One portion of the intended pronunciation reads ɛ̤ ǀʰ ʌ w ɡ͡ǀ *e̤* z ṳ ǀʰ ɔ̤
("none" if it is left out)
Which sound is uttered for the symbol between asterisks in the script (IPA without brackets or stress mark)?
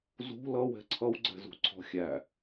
ɛ̤